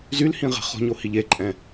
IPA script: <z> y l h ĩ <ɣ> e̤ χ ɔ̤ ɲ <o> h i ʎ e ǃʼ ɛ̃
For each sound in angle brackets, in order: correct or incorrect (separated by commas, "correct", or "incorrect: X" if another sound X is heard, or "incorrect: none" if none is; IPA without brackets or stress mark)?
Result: correct, incorrect: ʁ, correct